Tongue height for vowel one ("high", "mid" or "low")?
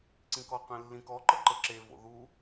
high